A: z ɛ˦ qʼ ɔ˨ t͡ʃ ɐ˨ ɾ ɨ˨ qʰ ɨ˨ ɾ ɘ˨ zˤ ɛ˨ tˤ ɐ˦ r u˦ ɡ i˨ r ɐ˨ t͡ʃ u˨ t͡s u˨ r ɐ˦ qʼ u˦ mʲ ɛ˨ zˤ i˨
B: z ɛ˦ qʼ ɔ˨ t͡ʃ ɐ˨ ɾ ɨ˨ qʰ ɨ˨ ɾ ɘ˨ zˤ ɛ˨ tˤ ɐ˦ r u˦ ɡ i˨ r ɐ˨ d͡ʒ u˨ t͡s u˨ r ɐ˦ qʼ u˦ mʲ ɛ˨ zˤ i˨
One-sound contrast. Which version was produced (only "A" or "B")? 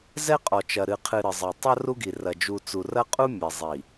B